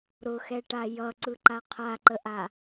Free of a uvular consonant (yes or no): no